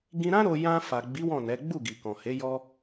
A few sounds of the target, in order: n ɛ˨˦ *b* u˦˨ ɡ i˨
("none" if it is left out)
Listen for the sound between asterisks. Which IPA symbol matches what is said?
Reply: ɡ͡b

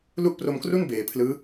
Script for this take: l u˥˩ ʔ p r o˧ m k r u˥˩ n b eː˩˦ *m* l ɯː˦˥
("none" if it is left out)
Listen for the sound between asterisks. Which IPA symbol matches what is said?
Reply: pʰ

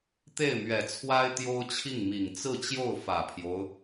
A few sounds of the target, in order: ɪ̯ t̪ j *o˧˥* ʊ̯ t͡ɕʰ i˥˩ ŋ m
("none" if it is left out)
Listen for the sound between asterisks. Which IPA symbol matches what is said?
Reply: o˥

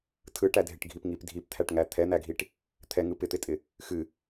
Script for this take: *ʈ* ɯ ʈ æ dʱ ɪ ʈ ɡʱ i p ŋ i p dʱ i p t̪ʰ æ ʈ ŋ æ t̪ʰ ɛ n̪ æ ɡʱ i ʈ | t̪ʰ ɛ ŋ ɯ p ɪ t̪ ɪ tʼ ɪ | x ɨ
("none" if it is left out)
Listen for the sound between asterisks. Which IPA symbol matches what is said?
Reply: tʰ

